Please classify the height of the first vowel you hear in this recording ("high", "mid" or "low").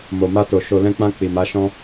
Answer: mid